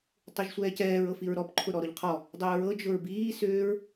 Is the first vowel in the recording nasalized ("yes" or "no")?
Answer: no